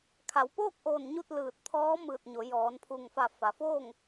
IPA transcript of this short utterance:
kʰ a˩˧ w p oː˥˨ k̚ ʔ oː˧˩ n ɲ u˥˨ t̚ l ɯː˧˩ t̚ t̪ʰ ɔː˧˥ m ɯː˧˩ t̚ ɲ o˩˧ j ɔː˩˧ n pʰ u˧˩ ŋ f a˧˩ f a˩ f oː˥˨ ŋ

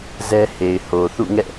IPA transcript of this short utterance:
z ɛ˦ h e˨ ɪ̯ h o˨ θ ṵ˦˨ ŋ ɛ̰˦˨

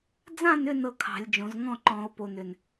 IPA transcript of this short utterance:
d͡z ã˥˨ n ʏ˥˨ n ɤ˥˨ kʰ ɑ̤˨˩˦ lʲ d͡ʒ õ˨˩˦ z ŋ ɔ̃˥˨ ǃ ɔ̃˨˩˦ o̯ p o˨˩ n ʏ˨˩ n

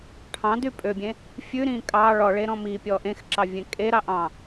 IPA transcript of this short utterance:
ʈʰ ɑ̃ d y pʼ ø bʲ ẽ | fʲ ʉ ɾ ĩː kʼ ɑ ɭ ɔ ɭ e ɾ ɔ̃ m i pʲ ɔ ʔ ẽ x ǁ ɑ vʲ ẽ kʼ e ɾ ɑ ʔ ɑ̃

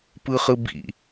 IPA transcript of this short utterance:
p ɯ χ ɯ b ḭ

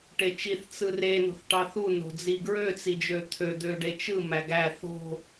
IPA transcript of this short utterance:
ʈ e t͡ʃ i θ t͡s ɯ r e n o̤ θ ʈ ɑ θ u n o̤ d͡z i ɡ ɹ ø t͡s i d͡ʒ ø t̪ʰ ø d̪ ø ɖ e t͡ʃ ɯ m æ ɡ æ θ o̤

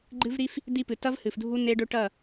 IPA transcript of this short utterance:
ɡ͡ǃ ɨ˦ v ɾ i˦ f | d i˦ p ɨ˨ t ɐ˦ v h ɨ˨ f dʱ u˦ n e˦ ɖ ɵ˦ ʈ ɐ˦˨

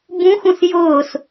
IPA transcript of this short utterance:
b ũ x ũ s j ʊː s

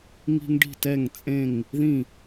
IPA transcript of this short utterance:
ŋ i̤˦ ŋ ɖ i̤˥˨ t ɛ˥˨ ŋ t͡sʼ ẽ˥˨ ŋ | ð ĩ˥˨

